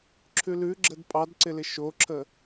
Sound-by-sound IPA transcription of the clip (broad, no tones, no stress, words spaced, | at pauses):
ǁʰʉlʉ ɡ͡ǁədpʼɑdǀɪlɪ ʃoǁʰə